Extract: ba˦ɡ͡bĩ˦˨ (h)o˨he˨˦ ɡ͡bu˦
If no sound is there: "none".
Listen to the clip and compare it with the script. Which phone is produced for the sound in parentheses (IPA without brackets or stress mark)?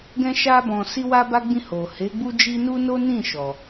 h